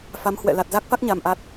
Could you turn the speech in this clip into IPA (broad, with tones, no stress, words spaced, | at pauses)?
fa˨˦mhwɛ̰˧˨ la˨˩t̚za˦˥k̚fa˦˥k̚ ɲa˧mʔa˦˥t̚